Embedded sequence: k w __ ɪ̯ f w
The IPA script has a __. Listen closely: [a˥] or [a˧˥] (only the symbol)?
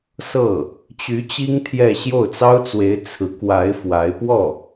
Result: a˧˥